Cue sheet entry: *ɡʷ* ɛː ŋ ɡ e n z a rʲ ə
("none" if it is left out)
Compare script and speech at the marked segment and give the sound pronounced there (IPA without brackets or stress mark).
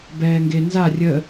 b